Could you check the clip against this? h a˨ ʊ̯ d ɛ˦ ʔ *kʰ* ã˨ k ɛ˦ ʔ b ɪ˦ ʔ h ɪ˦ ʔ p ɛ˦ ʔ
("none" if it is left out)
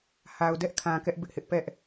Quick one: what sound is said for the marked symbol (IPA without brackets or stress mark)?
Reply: kʰ